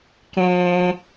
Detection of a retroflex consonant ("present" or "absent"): absent